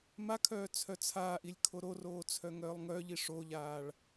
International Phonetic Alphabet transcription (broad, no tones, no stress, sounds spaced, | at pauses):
m a kʰ œː t͡sʰ œ t͡sʰ aː ʔ i lʲ kʰ o ɾ o r oː t͡sʰ œ ŋ œː lˠ ŋ œ ʎ i ʂ o ʎ aː ɭ